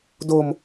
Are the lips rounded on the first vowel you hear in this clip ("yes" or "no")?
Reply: yes